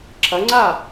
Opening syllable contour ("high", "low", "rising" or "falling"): rising